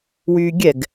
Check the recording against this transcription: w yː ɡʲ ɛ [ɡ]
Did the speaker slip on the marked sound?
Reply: no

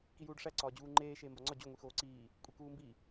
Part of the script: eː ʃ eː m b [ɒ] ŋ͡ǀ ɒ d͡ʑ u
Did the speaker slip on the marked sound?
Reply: no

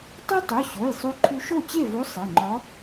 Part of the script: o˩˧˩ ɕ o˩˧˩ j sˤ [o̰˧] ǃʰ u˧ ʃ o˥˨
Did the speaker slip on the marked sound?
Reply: yes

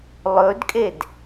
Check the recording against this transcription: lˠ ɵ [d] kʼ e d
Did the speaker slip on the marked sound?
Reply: no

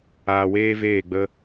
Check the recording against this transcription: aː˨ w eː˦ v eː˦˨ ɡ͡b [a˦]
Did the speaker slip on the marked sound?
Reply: yes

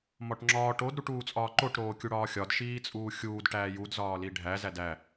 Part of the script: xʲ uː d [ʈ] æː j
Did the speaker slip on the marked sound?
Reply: no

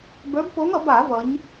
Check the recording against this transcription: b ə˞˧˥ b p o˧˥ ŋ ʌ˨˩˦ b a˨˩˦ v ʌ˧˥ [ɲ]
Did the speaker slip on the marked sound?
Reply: no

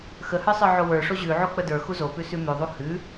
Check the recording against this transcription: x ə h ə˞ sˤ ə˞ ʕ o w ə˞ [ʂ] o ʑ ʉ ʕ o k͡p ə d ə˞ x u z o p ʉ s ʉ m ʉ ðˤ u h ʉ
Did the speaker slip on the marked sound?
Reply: no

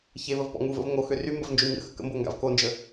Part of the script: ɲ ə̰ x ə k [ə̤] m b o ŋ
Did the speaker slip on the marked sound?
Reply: yes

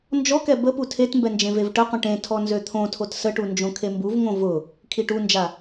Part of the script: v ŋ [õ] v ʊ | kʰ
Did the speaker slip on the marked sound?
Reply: no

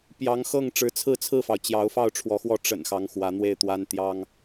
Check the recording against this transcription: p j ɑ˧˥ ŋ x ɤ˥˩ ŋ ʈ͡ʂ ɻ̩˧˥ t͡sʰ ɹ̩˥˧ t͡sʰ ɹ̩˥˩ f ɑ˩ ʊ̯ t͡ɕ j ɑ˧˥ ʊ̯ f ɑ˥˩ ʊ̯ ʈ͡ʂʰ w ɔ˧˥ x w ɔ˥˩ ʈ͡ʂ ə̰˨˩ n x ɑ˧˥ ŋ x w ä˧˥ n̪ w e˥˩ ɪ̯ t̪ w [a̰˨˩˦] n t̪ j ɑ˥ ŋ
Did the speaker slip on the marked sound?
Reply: yes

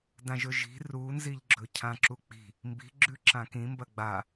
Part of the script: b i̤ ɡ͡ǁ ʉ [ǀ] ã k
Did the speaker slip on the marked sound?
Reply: yes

